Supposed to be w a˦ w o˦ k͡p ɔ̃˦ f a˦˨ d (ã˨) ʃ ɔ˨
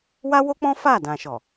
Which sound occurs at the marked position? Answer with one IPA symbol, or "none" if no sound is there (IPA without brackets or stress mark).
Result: ã˨